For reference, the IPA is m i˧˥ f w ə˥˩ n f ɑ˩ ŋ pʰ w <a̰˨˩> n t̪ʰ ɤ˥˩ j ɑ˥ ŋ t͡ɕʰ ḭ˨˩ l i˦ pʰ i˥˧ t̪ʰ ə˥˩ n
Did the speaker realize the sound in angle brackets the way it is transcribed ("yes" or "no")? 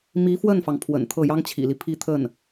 no